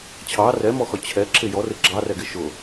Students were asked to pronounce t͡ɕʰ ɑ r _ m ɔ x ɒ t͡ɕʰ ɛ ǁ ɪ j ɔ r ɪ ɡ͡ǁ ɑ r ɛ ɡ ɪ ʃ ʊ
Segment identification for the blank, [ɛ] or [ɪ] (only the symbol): ɛ